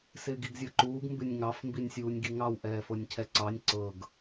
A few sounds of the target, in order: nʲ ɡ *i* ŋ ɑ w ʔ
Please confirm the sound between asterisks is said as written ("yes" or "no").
yes